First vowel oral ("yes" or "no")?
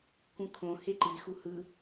no